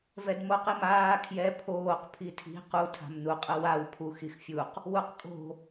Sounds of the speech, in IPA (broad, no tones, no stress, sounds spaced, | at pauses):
v ɛ d m o q i m aː kʰ j ɛ pʰ oː q pʰ i tʰ i̤ q u tʰ a̤ m n u qʼ ɯ w a w pʰ u x i x fʲ u q | w u q kʼ o̤